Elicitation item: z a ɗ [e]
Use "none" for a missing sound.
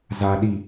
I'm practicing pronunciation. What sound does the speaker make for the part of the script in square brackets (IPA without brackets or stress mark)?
i